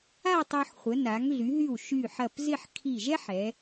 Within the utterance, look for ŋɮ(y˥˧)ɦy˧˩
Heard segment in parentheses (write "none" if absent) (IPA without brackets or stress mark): y˩˧